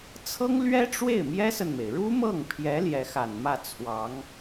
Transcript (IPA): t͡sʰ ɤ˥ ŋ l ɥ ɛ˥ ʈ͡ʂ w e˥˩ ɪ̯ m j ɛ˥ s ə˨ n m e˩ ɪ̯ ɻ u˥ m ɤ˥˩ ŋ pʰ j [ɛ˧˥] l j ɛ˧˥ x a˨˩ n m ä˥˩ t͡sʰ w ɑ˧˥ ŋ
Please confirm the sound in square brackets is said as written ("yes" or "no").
yes